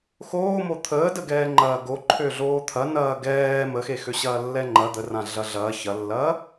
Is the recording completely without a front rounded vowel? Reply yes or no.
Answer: no